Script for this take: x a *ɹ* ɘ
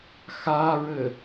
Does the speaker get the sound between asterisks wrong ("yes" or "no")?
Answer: no